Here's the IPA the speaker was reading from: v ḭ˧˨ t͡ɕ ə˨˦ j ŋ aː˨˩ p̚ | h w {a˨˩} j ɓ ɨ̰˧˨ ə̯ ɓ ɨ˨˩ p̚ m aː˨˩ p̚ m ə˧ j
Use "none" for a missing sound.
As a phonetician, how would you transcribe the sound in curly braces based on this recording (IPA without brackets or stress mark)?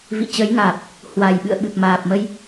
a˨˩